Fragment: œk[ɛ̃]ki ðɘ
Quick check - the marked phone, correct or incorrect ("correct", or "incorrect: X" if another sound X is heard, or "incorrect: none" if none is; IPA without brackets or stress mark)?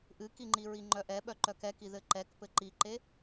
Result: incorrect: ɛ